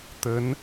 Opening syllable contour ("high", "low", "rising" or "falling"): rising